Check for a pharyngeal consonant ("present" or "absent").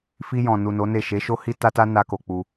absent